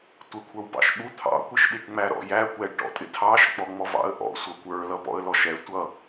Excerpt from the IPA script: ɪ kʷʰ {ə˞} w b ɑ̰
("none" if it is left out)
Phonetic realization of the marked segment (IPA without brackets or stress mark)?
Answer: ə˞